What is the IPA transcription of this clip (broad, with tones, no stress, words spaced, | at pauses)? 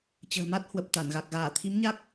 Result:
t͡ɕə̤ː˨˩ma˦˥t̚hwə˨˩p̚ t̪a˧˩nɣa˨˩k̚ ɣaː˧˩t̪ʰi˨˦mɲa˦˥k̚